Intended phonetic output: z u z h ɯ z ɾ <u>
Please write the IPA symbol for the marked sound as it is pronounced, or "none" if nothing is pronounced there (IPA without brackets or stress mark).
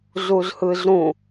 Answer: ũ